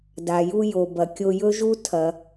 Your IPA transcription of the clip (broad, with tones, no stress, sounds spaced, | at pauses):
d a˩ j u˧ j o˩ b ɐ˩ kʲ o˧ j ɵ˥ ʒ u˥ tʰ ɐ˩